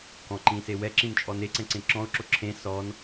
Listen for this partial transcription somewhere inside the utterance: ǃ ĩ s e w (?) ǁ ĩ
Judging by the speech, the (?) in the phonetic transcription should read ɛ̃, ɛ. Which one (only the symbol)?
ɛ